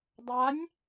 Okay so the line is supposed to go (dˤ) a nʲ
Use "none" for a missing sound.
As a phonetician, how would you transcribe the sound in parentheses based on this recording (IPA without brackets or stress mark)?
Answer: dˤ